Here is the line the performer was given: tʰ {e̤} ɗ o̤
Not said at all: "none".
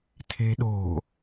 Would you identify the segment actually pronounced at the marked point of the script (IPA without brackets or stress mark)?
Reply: e̤